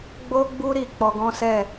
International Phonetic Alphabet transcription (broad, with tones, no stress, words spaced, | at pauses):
ɡ͡bo˦ɡ͡bu˦ɾi˧ k͡pɔ˧ɡɔ̃˦sɛ˦˨